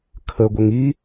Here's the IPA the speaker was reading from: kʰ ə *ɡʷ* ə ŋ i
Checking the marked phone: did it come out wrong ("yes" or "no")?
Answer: no